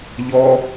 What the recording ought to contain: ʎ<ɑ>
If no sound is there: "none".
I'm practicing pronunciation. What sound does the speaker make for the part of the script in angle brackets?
ɔ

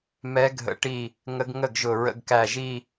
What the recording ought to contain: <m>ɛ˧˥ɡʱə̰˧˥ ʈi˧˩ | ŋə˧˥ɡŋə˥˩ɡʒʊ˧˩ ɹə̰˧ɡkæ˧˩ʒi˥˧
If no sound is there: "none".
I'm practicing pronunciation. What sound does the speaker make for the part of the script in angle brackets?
m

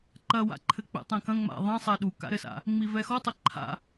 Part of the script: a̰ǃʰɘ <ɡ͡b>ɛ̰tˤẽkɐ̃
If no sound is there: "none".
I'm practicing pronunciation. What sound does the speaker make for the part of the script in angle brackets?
k͡p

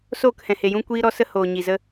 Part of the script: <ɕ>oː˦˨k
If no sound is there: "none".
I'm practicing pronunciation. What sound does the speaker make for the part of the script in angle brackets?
s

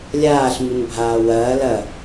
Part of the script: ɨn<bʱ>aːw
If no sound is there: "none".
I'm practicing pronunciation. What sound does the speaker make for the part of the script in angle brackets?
bʱ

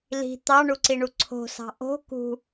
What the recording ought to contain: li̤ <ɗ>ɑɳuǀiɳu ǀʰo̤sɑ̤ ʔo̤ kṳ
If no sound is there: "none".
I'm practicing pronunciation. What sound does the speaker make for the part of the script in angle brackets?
t̪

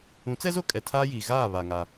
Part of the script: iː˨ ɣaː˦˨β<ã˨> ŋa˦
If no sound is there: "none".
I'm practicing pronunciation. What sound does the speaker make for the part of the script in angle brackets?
a˨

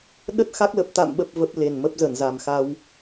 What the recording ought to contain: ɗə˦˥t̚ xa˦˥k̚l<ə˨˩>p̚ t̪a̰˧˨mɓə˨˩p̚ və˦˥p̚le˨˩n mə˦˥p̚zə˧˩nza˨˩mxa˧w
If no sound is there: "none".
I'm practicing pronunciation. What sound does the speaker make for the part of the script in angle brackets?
ə˨˩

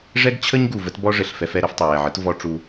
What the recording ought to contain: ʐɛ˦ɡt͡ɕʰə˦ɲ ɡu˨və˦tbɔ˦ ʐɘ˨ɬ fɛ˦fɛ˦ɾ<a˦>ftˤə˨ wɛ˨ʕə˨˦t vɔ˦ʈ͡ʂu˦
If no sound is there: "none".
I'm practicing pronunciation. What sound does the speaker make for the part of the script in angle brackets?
ə˦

